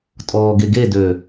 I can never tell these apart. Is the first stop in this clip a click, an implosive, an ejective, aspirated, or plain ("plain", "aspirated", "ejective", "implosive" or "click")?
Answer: ejective